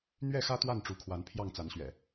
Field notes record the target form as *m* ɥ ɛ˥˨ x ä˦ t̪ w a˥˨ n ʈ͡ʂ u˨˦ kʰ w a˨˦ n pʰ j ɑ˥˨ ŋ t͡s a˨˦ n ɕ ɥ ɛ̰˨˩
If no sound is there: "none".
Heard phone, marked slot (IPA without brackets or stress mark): n̪